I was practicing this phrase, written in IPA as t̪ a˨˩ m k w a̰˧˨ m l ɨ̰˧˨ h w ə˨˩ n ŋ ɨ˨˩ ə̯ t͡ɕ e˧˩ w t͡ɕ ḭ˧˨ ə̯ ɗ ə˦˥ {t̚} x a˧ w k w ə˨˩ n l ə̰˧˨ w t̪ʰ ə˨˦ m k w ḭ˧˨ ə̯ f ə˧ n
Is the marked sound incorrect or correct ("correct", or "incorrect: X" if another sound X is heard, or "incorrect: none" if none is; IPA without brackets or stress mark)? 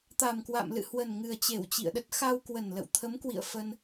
correct